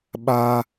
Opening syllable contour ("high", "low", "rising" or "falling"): high